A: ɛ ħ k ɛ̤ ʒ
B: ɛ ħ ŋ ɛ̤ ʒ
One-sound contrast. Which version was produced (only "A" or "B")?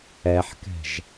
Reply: A